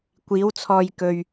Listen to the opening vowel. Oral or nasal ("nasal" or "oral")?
oral